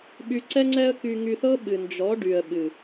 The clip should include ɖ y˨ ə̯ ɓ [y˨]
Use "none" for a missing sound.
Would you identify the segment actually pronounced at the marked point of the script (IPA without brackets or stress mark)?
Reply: ɨ˨